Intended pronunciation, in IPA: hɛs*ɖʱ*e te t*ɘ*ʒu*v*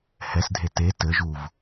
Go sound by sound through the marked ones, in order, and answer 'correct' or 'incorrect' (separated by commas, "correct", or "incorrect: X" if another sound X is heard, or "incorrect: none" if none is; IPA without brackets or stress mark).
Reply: incorrect: dʱ, correct, correct